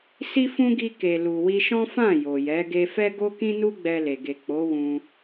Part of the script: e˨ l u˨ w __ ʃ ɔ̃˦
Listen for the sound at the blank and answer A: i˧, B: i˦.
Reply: A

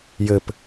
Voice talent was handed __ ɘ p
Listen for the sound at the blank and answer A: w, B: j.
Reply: B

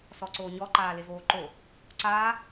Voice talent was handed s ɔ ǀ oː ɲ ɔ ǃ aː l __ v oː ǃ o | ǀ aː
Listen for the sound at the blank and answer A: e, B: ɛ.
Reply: A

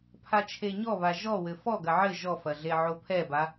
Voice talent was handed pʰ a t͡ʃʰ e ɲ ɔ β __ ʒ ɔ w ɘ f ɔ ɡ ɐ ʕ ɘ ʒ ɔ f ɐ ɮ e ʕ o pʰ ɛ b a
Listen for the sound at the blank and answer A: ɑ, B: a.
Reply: B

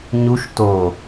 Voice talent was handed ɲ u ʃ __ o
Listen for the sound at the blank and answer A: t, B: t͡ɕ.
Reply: A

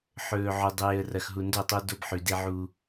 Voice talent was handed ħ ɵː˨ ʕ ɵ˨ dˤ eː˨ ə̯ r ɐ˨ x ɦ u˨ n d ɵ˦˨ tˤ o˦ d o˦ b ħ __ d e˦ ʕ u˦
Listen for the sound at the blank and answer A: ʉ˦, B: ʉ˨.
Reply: B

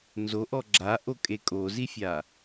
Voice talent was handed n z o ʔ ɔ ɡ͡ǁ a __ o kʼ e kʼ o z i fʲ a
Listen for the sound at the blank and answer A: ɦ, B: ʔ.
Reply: B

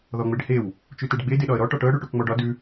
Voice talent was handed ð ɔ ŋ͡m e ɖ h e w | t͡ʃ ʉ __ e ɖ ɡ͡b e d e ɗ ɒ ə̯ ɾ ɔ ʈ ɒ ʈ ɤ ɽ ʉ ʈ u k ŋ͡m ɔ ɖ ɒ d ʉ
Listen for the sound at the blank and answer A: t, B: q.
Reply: A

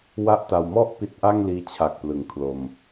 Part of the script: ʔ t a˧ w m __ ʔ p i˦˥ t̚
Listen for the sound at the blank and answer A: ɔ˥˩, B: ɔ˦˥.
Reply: A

